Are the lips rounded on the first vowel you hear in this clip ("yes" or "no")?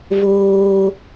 yes